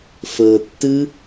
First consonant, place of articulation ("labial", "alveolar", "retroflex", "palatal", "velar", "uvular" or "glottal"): labial